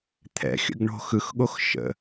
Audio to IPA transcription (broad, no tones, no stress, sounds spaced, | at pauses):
t̪ʰ ɛ̰ xʲ ə̰ ɡ ɳ o̤ x ɯ x ɠ o x ʃ ə̰